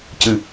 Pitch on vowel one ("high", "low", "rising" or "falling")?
low